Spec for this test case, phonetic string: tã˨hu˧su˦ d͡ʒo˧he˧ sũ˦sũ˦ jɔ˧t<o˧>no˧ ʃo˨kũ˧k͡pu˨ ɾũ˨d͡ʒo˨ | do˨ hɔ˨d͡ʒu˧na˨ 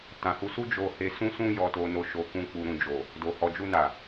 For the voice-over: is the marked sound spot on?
yes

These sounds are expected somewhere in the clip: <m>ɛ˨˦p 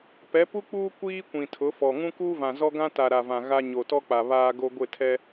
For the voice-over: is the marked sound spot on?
no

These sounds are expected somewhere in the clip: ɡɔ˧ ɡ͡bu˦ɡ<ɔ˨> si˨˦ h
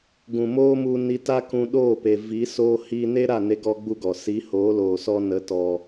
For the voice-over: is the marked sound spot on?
yes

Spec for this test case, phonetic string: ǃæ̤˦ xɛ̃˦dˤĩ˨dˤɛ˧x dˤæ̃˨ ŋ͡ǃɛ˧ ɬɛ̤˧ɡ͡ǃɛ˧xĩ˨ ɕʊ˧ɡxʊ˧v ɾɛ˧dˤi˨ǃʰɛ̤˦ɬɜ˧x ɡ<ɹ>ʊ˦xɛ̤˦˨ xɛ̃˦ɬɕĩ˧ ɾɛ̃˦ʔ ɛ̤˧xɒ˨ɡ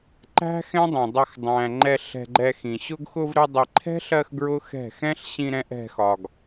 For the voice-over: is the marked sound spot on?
yes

